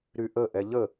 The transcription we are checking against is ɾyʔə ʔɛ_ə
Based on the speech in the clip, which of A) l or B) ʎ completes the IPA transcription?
B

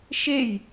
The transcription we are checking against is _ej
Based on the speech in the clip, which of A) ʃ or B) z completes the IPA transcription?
A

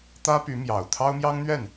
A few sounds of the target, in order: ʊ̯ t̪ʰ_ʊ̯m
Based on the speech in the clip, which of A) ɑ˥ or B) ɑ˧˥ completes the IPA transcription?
A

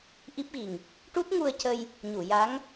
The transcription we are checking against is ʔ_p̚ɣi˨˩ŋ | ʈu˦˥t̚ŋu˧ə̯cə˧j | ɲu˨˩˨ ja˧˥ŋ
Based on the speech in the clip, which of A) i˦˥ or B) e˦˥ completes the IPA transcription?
A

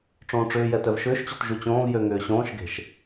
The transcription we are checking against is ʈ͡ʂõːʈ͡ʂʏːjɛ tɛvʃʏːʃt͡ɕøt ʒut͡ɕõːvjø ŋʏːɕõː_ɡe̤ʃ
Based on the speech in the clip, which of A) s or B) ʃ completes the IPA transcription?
B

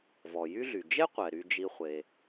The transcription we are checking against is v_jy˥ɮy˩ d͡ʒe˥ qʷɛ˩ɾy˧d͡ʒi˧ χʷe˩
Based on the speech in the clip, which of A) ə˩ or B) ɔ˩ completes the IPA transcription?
B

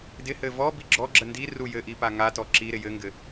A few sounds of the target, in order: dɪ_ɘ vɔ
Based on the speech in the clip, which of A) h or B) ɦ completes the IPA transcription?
A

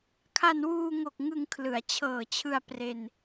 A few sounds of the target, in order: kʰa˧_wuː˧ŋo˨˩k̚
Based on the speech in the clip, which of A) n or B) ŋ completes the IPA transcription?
A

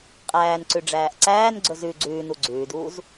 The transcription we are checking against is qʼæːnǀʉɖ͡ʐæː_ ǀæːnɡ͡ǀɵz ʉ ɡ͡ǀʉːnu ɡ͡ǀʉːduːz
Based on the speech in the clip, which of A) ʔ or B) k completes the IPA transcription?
A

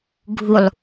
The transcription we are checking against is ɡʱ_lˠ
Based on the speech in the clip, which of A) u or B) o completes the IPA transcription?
A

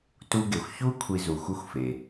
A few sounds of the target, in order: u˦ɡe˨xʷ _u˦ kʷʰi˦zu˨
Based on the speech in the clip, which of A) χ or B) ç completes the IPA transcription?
B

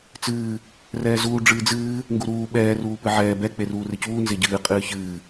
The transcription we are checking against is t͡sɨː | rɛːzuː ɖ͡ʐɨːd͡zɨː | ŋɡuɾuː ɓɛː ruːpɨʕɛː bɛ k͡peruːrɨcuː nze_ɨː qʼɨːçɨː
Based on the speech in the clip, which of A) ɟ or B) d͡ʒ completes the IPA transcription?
A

